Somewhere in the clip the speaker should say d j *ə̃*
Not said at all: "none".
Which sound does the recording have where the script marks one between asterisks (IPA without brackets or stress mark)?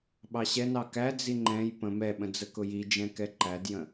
ə̃